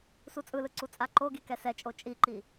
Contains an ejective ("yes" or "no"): yes